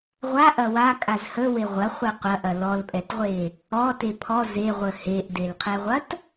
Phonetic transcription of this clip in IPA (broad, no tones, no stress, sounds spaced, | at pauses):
ʁʷ a ʔ ɐ w a kʼ a z h ə w e ʁʷ ɐ χʷ ɛ qʷ ɐ ʔ ɐ l ɔ l pʼ ɛ t ʁʷ e | ɔ t e pʰ ɔ z e ʁʷ ə h e ʔ d e l qʰ ɛ ʁʷ ɐ t